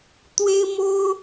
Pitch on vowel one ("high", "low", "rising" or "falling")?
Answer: high